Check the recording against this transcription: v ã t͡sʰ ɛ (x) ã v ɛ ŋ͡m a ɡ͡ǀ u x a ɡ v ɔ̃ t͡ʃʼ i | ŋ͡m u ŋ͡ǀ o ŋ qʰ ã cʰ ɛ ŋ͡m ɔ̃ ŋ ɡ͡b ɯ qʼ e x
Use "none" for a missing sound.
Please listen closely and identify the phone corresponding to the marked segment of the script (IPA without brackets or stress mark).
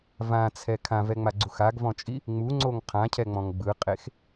kʰ